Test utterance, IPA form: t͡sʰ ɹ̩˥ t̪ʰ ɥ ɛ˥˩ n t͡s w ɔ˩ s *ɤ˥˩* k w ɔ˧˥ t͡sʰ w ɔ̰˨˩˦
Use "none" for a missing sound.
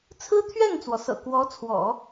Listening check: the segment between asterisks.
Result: ɤ̰˨˩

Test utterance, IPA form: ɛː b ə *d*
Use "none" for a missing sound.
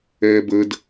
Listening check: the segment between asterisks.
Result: d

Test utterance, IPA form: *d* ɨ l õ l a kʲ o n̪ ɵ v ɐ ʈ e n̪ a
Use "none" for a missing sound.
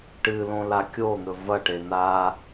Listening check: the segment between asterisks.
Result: ʈ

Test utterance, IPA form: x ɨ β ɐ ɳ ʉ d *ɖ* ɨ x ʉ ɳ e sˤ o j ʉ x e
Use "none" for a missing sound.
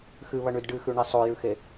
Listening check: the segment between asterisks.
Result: ɖ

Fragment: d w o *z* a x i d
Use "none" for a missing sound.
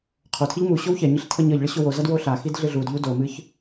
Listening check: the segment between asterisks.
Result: ɬ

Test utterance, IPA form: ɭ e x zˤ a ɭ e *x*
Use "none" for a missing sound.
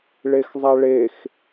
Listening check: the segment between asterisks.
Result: x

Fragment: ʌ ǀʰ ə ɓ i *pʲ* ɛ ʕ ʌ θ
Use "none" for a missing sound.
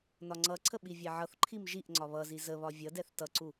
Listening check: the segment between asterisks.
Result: vʲ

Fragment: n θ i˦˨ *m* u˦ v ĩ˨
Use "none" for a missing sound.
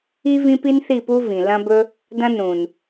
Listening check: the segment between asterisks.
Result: p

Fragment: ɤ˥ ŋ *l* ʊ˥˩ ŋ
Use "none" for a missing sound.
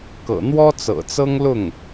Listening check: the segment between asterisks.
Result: l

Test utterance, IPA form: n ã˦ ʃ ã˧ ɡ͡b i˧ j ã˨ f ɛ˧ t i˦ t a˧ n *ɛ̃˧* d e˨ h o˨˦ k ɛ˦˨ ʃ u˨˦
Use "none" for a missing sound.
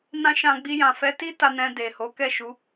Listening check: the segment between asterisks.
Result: ɛ̃˧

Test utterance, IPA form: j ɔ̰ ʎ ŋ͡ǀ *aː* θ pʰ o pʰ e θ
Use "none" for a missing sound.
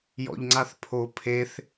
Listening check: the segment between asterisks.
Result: a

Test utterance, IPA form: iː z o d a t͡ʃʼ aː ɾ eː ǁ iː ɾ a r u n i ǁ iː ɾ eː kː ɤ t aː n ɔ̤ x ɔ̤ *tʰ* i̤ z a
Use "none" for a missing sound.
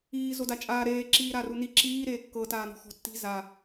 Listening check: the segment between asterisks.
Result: tː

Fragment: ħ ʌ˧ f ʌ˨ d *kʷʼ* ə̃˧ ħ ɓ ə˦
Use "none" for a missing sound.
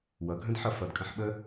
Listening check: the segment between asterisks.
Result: kʼ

